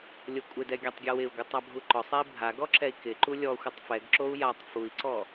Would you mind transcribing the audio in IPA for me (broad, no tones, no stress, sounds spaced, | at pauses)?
lʲ o kʷʼ ɪ d ɛ ɡʲ a tˤ ɡʲ ɔ w ɪ u̯ ɡʷ ɪ tˤ a bʱ u ǃ ɔ sˤ ɛ i̯ bʱ a ɡ ɔ ǁ ɛ i̯ k ɪ ǃ u lʲ ɔ xʷ ɪ tˤ f ɛ ɡ ǁ o u̯ j a tˤ f u i̯ ǀ ɔ